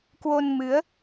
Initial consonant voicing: voiceless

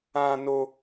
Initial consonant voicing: voiced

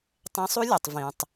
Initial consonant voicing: voiceless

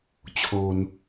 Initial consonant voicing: voiceless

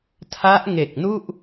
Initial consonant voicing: voiceless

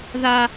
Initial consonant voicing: voiced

